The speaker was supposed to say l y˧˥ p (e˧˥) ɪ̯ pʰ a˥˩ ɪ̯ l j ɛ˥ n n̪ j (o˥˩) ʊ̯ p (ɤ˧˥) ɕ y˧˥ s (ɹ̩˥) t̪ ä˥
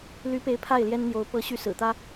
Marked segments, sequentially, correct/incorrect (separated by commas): correct, incorrect, correct, incorrect